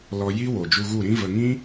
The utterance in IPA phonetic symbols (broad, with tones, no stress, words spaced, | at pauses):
lɔ˧ji˦ wo˨ d͡ʒu˧ɣu˦˨ɾĩ˦və˧ ŋĩ˦